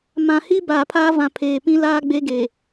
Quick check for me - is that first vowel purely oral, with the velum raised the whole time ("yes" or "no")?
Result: no